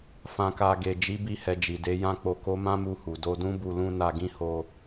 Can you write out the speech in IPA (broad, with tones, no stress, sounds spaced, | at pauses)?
f ã˨ k a˨ ɡ e˨ d͡ʒ i˨˦ b i˧ h ɛ˨ d͡ʒ i˨ d e˨˦ j ã˦ k͡p o˧ k o˦ m ã˦ m u˧ h u˨ d o˧ d ũ˦ b u˧ l ũ˦ n a˧ ɡ ĩ˦ h o˧